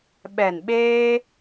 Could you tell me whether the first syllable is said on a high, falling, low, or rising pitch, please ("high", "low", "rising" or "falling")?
low